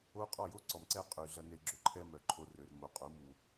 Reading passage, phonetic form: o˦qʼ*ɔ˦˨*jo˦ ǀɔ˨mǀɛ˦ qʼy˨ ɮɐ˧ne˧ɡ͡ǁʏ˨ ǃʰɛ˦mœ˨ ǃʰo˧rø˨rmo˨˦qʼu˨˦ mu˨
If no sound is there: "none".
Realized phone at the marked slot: ɔ˦˨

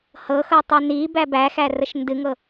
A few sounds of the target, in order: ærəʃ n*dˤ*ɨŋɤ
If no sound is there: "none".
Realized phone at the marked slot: d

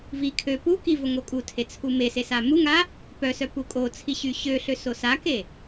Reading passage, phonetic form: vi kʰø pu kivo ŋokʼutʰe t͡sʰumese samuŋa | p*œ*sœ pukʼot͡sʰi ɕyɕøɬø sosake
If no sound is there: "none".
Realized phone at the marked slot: œ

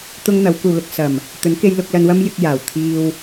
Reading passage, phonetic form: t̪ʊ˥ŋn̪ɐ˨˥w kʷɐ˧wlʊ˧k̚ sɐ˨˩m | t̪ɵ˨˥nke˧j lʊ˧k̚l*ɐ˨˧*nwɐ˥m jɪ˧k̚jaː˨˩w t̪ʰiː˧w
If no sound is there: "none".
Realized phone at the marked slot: ɐ˧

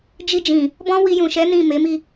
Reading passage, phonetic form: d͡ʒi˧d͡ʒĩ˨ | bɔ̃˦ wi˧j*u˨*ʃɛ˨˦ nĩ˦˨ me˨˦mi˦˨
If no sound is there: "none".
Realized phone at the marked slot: ũ˨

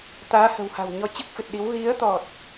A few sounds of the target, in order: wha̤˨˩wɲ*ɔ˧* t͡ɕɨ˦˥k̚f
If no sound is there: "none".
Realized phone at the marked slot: ɔ˧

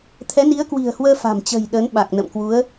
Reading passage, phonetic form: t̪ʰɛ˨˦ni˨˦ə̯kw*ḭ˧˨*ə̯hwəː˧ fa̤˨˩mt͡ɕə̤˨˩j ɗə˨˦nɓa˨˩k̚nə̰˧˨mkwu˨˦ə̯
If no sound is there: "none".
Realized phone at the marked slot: i̤˨˩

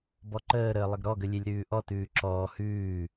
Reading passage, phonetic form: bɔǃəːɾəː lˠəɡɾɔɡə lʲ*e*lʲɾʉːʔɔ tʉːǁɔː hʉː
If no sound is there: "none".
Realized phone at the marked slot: e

